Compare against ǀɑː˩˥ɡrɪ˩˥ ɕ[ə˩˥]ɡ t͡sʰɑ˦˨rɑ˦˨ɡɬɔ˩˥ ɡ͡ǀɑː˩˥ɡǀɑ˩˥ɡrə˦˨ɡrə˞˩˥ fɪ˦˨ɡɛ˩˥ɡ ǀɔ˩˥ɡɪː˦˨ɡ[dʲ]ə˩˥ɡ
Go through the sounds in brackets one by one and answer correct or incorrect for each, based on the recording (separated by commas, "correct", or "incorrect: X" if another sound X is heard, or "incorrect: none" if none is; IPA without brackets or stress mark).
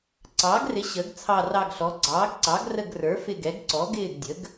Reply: correct, correct